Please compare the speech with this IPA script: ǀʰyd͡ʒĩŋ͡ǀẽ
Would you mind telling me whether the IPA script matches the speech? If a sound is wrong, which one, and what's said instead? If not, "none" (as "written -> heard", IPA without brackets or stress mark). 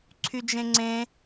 ĩ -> ẽ